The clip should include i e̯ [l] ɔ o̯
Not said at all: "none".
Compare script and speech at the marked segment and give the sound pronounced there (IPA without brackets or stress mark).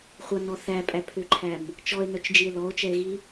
l